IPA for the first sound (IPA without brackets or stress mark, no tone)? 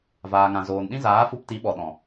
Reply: v